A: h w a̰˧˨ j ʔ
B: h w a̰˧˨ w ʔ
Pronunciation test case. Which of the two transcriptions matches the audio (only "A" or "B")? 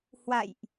A